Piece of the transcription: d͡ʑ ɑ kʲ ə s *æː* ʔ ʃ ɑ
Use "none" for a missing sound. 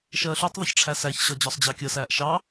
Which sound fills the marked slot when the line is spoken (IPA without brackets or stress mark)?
æː